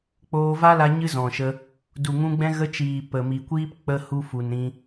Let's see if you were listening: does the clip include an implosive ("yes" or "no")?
no